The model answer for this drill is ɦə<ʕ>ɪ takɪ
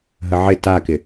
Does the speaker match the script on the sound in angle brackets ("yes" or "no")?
yes